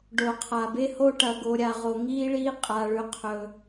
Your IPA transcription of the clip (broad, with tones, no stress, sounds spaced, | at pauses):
ɖ o˨ qʰ a˨ b e˦ h o˦ ʈ ɐ˨ ɡ o˨ ɾʲ a˨ ʁ o˨ ŋ iː˦ ɭ iː˦ qʼ a˦ ɭ ʉ˦ qʰ ɵ˦